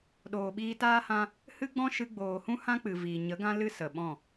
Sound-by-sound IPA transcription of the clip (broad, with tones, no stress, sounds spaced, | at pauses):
ɗ oː˨ ɓ iː˧ t aː˦ h ã˦ | h ɨ˦ ɡ͡b ɔ̃˦ ʃ ɨ˧ ɡ͡b oː˨ h ũ˦ h ã˦ k͡p ɨ˨ v iː˨ ɲ ə˨˦ ɡ ã˦ l ɨ˦ s ə˨ ɓ ɔ̃˦˨